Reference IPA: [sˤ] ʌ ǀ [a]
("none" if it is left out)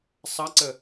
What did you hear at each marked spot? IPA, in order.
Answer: sˤ, ə

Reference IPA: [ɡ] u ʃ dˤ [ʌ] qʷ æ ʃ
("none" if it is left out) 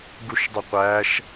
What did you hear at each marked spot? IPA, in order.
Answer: ɡ, ə

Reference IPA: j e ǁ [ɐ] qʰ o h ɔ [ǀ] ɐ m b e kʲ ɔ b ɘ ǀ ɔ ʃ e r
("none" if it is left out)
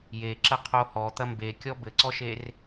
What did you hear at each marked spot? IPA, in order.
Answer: ɐ, t̪

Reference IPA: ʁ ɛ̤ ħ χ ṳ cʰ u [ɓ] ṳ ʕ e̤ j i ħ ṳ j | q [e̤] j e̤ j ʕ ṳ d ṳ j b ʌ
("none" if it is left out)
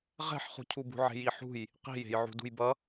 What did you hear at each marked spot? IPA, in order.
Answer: b, i̤

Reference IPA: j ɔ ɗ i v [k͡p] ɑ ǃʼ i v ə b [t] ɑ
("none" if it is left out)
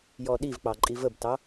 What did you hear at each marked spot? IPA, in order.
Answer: k͡p, t

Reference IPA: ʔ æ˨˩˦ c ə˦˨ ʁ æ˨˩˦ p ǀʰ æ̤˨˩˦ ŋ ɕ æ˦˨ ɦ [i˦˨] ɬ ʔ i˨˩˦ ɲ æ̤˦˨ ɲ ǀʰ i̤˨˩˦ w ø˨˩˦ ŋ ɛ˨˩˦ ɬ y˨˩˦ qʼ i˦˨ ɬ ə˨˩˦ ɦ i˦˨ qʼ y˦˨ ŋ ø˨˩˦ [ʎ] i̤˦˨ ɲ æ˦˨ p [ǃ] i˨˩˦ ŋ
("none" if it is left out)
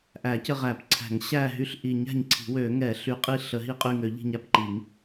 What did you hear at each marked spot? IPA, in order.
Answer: y˦˨, ʎ, ǃ

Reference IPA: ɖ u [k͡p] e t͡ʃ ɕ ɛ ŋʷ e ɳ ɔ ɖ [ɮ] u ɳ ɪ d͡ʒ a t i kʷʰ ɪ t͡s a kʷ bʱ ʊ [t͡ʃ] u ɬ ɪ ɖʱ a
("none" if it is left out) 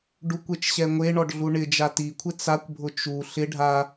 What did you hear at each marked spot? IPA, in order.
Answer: kʷ, ɮ, t͡ʃ

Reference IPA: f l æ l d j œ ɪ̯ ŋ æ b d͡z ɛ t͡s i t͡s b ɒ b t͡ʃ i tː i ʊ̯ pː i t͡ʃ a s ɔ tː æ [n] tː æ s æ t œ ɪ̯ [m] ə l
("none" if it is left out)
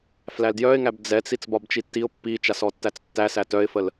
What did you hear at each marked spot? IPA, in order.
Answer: t͡s, f

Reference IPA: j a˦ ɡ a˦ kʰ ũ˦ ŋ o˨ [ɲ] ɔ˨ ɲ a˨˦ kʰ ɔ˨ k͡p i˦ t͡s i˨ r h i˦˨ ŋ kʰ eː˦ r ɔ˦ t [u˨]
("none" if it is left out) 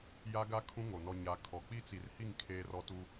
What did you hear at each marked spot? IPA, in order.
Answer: n, u˦

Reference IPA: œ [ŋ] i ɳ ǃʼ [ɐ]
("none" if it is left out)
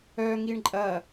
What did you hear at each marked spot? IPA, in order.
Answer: ŋ, ɐ

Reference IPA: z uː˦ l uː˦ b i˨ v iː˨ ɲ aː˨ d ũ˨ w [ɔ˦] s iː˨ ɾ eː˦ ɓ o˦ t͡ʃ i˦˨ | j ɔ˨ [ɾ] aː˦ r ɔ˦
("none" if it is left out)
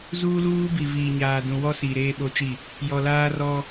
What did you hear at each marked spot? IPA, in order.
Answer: ɔ˦, l

